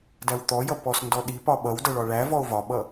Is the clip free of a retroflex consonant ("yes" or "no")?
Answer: no